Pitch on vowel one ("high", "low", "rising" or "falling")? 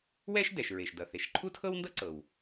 high